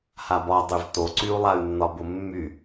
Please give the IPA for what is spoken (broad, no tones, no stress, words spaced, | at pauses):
habɒdˤyv toǀyu̯lˠay̯nːɒ bʊmːy